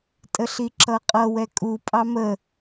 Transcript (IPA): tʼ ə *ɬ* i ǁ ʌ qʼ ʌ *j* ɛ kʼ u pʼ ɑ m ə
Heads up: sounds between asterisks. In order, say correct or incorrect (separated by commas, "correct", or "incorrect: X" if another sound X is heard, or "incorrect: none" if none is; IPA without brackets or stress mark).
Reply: correct, incorrect: w